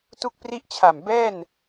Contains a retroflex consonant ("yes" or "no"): no